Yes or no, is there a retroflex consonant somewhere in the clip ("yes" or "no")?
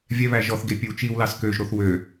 no